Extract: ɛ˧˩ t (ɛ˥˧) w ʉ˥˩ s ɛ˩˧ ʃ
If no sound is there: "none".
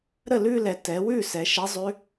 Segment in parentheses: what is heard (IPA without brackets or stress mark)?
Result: ɛ˩˧